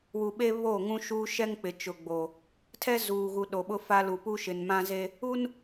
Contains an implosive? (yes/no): yes